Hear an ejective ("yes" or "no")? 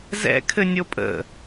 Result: yes